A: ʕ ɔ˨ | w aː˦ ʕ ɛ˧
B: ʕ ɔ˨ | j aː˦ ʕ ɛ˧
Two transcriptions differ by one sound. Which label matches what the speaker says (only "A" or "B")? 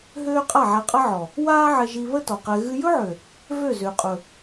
A